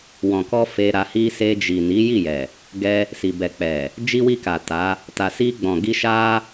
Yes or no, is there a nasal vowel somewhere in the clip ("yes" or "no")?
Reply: yes